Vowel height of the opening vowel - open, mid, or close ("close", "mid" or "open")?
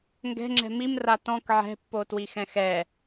mid